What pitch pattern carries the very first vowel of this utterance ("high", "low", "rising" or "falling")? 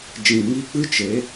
low